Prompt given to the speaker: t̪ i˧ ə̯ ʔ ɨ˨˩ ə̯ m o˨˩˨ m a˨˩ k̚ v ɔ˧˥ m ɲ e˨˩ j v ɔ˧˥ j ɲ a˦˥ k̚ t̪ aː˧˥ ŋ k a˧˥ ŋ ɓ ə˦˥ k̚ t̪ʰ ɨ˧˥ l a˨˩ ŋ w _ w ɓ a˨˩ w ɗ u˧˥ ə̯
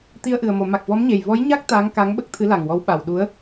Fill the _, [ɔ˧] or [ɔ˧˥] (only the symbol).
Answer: ɔ˧˥